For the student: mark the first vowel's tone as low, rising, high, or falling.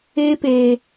high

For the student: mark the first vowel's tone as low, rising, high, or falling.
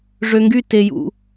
low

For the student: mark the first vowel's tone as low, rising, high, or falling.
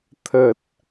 low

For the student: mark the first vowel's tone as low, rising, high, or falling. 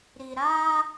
low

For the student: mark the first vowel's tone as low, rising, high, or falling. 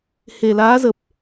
low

